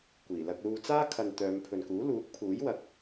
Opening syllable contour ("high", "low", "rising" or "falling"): low